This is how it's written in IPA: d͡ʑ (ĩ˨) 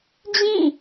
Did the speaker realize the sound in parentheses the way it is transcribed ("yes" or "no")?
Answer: no